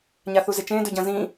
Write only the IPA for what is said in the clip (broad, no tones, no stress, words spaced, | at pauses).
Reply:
ɲaθuzet͡ʃẽ dɵɟɐ̃zĩ